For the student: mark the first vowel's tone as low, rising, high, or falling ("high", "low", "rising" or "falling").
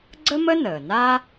high